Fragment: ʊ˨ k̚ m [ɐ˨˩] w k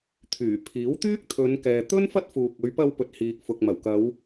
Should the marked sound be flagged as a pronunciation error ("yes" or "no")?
no